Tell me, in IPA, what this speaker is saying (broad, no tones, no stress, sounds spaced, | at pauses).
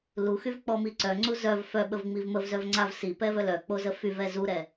l u x y v k͡p ɔ m i ǀ œ ŋ͡ǀ u z œ v f œ ɓ ə v ŋ͡m i v m ə v z œ v ŋ͡ǀ a v s i p ɛ v œ l œ k͡p o z ə f y v ɛ z u ɾ ɛ